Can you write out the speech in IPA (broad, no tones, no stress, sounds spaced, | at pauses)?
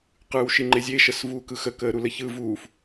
q ɯː w ʃ i ŋ͡ǃ e zʲ e ʃ ə s v uː k ɯ x ə k əː ɾ u l ə ç ɯ v uː f